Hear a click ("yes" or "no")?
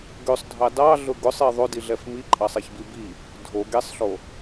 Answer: yes